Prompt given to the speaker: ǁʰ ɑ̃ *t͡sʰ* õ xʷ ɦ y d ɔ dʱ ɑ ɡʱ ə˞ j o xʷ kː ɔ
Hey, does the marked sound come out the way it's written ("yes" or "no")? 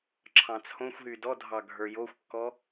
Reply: yes